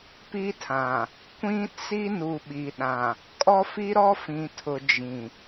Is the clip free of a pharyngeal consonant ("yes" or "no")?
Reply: yes